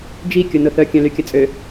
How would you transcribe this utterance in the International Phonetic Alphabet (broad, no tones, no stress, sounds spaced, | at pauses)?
d͡ʒ i kʲ ʊ n ʊ θ œ kʲ œ̃ l y kʲ ə t͡sʼ ø